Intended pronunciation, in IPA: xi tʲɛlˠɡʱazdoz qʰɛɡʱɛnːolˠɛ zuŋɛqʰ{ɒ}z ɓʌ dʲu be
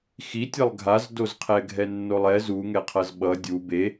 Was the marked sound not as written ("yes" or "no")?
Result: yes